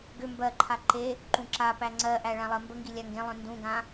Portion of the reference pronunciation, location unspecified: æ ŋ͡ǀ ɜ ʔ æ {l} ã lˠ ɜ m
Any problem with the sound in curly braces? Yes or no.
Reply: yes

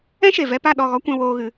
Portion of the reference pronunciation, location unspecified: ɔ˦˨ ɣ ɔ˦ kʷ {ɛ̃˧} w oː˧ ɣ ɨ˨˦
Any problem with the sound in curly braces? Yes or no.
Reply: no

